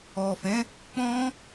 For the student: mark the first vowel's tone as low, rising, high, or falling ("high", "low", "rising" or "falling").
low